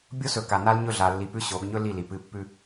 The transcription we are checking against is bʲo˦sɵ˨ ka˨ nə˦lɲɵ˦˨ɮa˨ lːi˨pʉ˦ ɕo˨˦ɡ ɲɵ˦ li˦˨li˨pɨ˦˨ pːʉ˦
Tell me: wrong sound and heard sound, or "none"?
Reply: ə˦ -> a˦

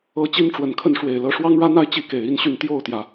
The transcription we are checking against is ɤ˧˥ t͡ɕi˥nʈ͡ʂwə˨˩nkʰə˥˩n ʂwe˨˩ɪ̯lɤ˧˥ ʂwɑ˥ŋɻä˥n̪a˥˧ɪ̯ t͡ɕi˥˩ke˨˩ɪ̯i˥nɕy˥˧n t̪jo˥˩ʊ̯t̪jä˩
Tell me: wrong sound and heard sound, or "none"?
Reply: none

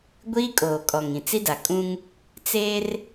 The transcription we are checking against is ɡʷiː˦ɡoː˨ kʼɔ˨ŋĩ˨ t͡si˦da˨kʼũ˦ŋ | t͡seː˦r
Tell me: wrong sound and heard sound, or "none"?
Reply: ɡ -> kʼ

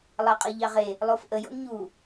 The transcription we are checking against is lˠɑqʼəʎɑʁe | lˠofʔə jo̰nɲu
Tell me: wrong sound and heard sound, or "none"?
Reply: none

